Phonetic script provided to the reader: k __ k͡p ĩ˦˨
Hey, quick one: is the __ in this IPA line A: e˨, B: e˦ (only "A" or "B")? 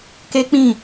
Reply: B